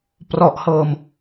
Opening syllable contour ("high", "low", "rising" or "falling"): low